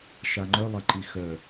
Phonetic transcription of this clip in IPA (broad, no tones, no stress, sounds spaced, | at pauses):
ʃ a ŋ͡ǃ œ lˠ ɐ ǃ i x œ